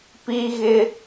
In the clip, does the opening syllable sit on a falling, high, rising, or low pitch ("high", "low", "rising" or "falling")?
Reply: high